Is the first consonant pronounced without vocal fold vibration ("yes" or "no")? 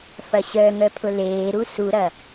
yes